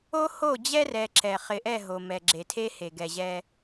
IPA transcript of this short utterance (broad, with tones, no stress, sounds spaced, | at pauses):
o˦ h o˦˨ d͡ʑ ɛ˦ r ɛ˨ ǁ ɛ˨ χ ɪ˨ ʔ ɛ˦˨ ɦ o˨ m ɛ˨ ɡ͡ǁ e˨ tʰ e˦ h e˨ ɡ ɛ˨ ʑ ɛ˦